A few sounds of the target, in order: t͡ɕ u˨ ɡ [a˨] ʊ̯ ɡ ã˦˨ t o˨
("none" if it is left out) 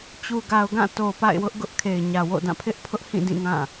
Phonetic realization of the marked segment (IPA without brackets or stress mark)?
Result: a˨